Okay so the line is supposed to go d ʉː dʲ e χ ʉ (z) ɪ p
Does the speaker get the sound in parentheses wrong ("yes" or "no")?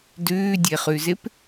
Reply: no